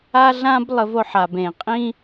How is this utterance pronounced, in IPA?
a˥ ɮ ã˥ b lˠ ə˧ v o˧ ħ a˩ b ẽ˩ qʼ ĩ˥

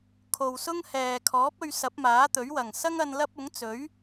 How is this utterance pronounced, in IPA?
kʰ o˨ w s ʊ˥ ŋ h ɛː˨ kʰ ɔː˨˥ p̚ ɵ˧ ɥ s ɐ˨˥ p̚ m aː˨˥ t̪ ɵ˨˥ ɥ w ɐ˨˩ ŋ s ɐ˥ ŋ ɐ˧ n l ɐ˥ p̚ ʊ˨˥ ŋ t͡s ɵ˨˥ ɥ

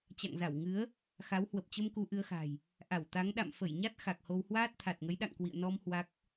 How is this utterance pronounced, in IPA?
t͡ɕ a̰˧˨ ŋ z a˧˩ w ŋ ɨ˨˦ ə̯ | x a˨˦ w h w ə˨˩ p̚ t͡ɕ ə˧ m k u˧ ʔ ɨ˧ ə̯ x a̤˨˩ j | ʔ a˧˩ w t̪ a˨˦ ŋ ɗ a̰˧˨ m f ə˧˩ j ɲ a˦˥ t̚ x a˨˩ k̚ h o˧ w h w aː˦˥ t̚ t̪ʰ a˨˩ t̚ ŋ ə˨˦ j ɗ a̰˧˨ ŋ k w ḭ˧˨ ə̯ n ɔ˧ m h w a˦˥ k̚

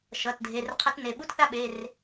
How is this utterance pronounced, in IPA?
ʃ ʌ˩˧˩ t dʱ e˩˧˩ r qʰ ʌ˦ t n e˩˧˩ ɓ u˦ t θ a˦ ɓ e˩˧˩ r

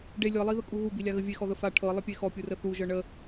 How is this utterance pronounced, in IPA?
ɖ e lʲ ɤ lˠ i ð ə kʼ u ɣ u b i lʲ a ɣ ə vʲ e x ɔ ð ə f a ʈʰ ɤ lˠ ə pʲ e x ɔ pʲ u r ə θ u ʒ ɤ ɳ ə

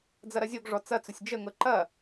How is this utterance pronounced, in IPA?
d͡z ɐ ɾ ɐ zʲ o ɡ ʐ ɔ t͡s ɐ t͡s ʊ sʲ d͡ʒ ə ŋ ɤ ǃ ɐ

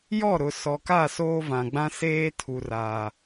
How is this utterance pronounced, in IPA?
j ɔ˦˨ ɾ ʊ˨ s ɔ˨ k a˦˨ s oː˦ v ã˨ ɡ͡b ã˦ s eː˦ tʰ u˨ r aː˨

